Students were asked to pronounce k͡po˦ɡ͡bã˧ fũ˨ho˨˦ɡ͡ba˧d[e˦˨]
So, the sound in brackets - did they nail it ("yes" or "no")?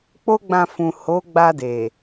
no